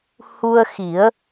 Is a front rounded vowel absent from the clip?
yes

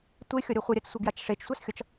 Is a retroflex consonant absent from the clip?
no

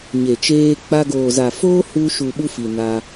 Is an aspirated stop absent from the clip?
yes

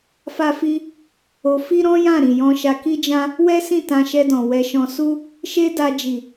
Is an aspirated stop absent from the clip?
yes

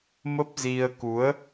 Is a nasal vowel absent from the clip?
yes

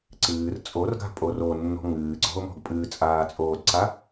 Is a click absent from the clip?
no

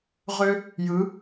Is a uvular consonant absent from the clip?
no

